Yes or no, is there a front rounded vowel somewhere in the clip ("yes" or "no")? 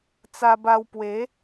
no